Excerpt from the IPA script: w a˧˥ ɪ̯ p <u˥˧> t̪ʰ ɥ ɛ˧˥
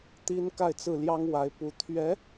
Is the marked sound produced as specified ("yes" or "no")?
no